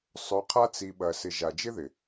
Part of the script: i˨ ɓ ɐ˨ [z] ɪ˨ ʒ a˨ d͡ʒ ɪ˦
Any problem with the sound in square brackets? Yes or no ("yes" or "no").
yes